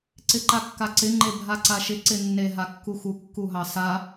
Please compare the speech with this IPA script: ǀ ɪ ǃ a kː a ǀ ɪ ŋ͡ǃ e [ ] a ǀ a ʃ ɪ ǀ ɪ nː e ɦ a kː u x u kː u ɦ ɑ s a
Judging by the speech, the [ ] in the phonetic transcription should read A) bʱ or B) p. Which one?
A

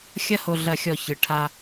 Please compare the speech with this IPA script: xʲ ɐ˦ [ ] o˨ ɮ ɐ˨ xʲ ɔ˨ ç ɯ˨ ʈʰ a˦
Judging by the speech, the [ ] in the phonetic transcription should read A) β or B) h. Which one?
B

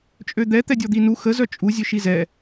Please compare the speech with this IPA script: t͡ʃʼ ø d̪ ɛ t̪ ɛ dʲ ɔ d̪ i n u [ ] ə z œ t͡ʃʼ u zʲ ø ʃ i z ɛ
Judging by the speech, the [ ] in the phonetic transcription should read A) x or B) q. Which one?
A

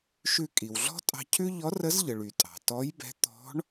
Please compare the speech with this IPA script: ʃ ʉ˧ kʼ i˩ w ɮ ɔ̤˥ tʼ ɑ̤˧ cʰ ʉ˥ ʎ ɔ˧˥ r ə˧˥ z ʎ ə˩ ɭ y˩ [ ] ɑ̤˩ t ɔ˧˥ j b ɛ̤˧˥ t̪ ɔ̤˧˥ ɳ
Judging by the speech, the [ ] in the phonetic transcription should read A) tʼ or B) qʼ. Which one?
A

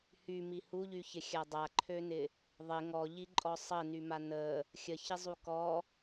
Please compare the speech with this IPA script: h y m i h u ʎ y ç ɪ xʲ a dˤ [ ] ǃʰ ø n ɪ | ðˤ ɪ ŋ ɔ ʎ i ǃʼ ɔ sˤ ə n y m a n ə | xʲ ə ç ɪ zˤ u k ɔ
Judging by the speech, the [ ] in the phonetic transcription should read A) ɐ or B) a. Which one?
B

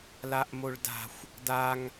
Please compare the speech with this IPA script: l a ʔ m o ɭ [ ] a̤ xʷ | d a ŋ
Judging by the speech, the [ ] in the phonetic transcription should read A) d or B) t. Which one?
A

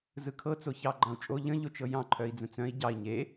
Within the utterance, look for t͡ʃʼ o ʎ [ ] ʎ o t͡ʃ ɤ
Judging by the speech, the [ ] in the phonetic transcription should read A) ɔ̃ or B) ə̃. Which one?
B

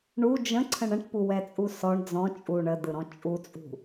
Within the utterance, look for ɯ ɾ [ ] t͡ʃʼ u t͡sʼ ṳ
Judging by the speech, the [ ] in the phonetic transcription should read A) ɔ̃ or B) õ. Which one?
A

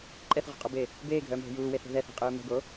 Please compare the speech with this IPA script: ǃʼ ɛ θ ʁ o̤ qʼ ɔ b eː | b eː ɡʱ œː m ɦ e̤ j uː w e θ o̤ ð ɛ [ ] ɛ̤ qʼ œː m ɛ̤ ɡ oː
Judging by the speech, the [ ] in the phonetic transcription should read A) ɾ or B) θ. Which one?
B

